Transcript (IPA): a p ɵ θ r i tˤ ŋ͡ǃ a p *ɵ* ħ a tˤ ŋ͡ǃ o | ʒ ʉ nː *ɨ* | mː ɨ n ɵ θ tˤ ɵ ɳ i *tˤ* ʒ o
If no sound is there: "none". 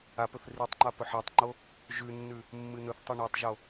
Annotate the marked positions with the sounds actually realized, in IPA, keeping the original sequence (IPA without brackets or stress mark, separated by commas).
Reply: ɵ, ʉ, tˤ